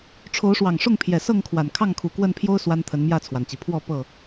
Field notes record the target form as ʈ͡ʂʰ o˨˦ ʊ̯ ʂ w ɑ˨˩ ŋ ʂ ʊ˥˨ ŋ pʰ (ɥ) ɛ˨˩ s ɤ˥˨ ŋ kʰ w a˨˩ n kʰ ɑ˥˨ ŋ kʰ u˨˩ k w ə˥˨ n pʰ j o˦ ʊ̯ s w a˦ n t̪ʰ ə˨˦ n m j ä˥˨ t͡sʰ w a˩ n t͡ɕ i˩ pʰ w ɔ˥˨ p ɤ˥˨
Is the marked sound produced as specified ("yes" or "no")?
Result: no